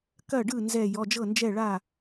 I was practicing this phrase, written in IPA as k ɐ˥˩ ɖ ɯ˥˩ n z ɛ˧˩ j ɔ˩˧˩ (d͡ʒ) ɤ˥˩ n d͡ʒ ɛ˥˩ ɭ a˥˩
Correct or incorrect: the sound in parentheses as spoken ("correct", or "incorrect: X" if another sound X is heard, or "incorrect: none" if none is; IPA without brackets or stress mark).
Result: correct